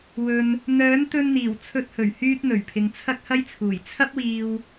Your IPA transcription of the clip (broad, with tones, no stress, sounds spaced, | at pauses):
w ɵ˨ n | n̪ œː˨˥ n t̪ ɵ˧ n n̪ iː˨˩ w t͡sʰ ɵ˧ t̚ h ɵ˨˩ ɥ h yː˥ t̚ n̪ ɵ˨˩ ɥ pʰ ɪ˨ ŋ t͡sʰ ɐ˥ k̚ h ɐ˥ j t͡sʰ uː˨˩ j t͡sʰ ɐ˥ p̚ w iː˧ w